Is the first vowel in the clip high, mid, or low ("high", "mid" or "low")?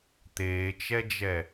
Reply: mid